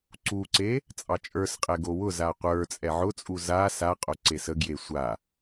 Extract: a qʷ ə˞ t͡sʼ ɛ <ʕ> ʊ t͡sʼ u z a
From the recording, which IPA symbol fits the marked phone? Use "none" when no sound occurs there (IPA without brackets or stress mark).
ʕ